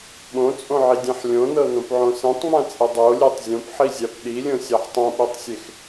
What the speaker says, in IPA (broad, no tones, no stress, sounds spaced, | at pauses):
ɓ õ t͡sʼ õ ʕ i dʲ ẽ ħ lʲ õ n ɤ n õ p ʕ õ s ẽ tˤ ŋ͡m ã t͡sʼ i dˤ o lʲ e tˤ zʲ õ p ħ i zʲ a p ɗ i lʲ õ sʲ a ħ tˤ õ ɓ i tˤ sʲ e x